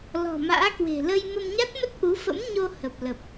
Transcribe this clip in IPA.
lɔ̤˨˩ma̰ː˧˥kwe̤˨˩ lə˧j mə˧mɲa˦˥t̚mə˦˥t̚ʔu˨˦ fə̰˧˥mɲo˧ hə˨˩p̚lə˨˩p̚

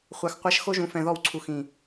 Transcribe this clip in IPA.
χʷa˨xqʷa˦ʃ xo˦ʒũ˨ fɛ̃˨ðɔ˦˨wǀʰu˨ xĩ˨

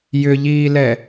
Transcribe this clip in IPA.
jʏʎiːlɛ

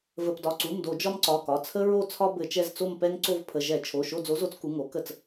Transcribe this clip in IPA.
və˩˧˩pdɒ˩˧˩ǀu˩˧˩mdo˧˩˧ d͡ʒɒ˦mǀɒ˩˧˩kɒ˩˧˩ t͡sʰə˦ɹo˦˨t͡sʰɒ˦ bɘ˧˩˧t͡ʃɛ˦˨z t͡so˦˨mpɛ˦ŋǀo˦˨vpʰə˩˧˩ ʒɛ˧˩˧t͡ʃʰo˩˧˩ ʃo˦˨d͡zo˨˥zo˨˥t͡s ku˩˧˩ŋo˨˥ kə˧˩˧t͡s

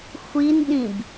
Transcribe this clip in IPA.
xʷinɗĩb

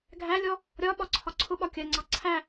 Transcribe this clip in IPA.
ɡʱælʲɔ | ɾʲɒ ɓɒǀʰɒǀʰʊɓɒ kʲɜŋ͡ǀɑ ǀʰæ

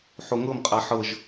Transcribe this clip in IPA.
ħoŋɤmqʼa ħɤʒ

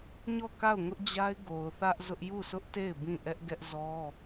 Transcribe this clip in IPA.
ɲɔ˦˨ka˦˨ʊ̯ŋʊ˦ʔd͡ʑa˦ɪ̯ ɡo˨ʊ̯ θä˦ʔzʊ˦ʔ ju˦˨sʰʊ˦ʔte˦˨ɪ̯ bĩ˦˨ ʔɛ˦ʔɡɛ˦ʔzɔ˦

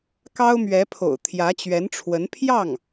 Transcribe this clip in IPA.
kɑ˥ʊ̯mɥɛ˧˥pʰo̰˨˩ʊ̯ t̪ʰjä˧˥t͡ɕɥɛ˧˥nʈ͡ʂʰwə˧˥n pʰjɑ˥˩ŋ

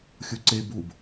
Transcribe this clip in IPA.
xʲuǀe bub

